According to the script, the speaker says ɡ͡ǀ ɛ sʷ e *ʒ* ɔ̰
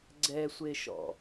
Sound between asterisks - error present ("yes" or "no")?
yes